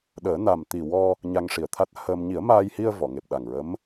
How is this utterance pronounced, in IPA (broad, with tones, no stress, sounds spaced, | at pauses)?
ɗ əː˨˩˦ n a˨˩ m t̪ i˨˩ w ɔ˧ | ɲ a˧ ŋ ʂ i˨˩ ə̯ t̪ʰ a˦˥ t̚ h əː˧ m ɲ i˨˩˦ ə̯ m aː˧ j h i˧ ə̯ v ɔ˨˩˨ ŋ e˨˩ p̚ ɗ a˨˩ ŋ ɹ ə˧˥ m